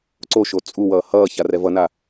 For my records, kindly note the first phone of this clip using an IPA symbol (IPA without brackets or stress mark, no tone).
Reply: ǀ